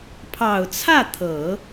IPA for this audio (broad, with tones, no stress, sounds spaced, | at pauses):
pʰ ɑ˨˩ ʊ̯ t͡sʰ ä˥˩ t̪ʰ ɤ˨˩˦